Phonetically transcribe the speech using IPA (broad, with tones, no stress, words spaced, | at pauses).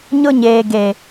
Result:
ɲʊ˦ ɲeː˨ ɡe˨